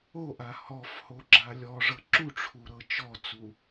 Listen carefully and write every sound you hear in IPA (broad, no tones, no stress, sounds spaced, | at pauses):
o ʔ a h ɔ f h o ɡ͡ǁ a lʲ ɔ ʐ ɤ ǁ u ʈ͡ʂʰ u ɾ ɤ t͡ʃ ɔ t͡s u